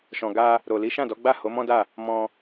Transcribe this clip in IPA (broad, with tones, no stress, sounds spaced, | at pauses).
ʃ ɔ̃˨ ɡ a˧ | ɾ o˨ l i˨˦ ʃ ã˦˨ d ɔ˨˦ ɡ͡b a˦˨ h o˨˦ m ɔ̃˦ d a˦˨ | m ɔ̃˧